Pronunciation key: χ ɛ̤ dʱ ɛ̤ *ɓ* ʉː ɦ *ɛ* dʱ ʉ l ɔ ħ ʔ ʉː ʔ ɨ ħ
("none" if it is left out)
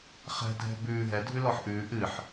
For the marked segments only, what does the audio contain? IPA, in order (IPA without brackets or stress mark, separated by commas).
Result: b, ɛ